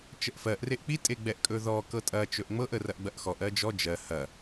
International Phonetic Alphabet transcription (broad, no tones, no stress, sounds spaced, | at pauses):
t͡ʃ ə ʔ f ɜ ʔ r e ʔ k͡p i tʼ e ɡ͡b ɛ ʔ kʼ ɵ ð ɔ k ɤ tʼ ɐ t͡ʃ ɵ ʔ ŋ͡m ɤ ʔ ə r ɐ ʔ ɡ͡b ɐ ʔ x ɔ ʔ ɜ d͡ʒ ɔ d͡ʒ ɜ h ɐ